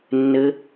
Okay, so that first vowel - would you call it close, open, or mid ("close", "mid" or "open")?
mid